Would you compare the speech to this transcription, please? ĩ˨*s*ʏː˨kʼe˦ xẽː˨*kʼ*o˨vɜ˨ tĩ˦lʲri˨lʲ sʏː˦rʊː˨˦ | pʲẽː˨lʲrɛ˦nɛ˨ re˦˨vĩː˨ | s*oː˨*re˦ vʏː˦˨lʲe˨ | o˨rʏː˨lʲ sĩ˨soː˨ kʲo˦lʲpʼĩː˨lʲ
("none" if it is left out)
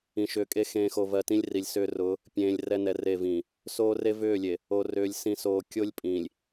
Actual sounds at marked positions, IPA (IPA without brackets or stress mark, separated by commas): ʃ, x, oː˦